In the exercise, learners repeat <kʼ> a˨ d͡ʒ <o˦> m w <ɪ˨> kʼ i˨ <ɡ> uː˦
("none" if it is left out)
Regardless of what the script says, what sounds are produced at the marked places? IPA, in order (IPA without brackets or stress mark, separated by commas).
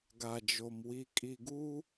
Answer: ɡ, o˨, i˨, ɡ